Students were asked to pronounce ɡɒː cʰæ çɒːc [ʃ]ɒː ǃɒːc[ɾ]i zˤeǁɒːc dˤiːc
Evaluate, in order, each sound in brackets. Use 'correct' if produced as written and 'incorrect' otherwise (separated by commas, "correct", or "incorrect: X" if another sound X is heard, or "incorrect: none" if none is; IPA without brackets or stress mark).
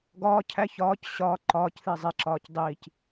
incorrect: ɕ, incorrect: θ